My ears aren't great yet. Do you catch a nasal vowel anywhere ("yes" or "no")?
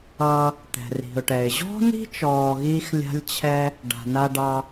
no